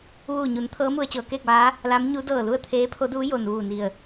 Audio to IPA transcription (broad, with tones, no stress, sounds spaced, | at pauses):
ʋ uː˧˩ ɲ u˩˧ n t̪ʰ ɤː˧˥ m u˧ ə̯ t͡ɕ ɤː˩˧ k eː˥˨ k̚ ʋ aː˧˥ | l a˧˥ m ɲ u˧˥ d ɤː˧˩ l u˥˨ ə̯ t̪ʰ eː˧˥ pʰ o˧˥ d uː˧˥ j o˩ n ʋ uː˧˩ n i˧˩ ə̯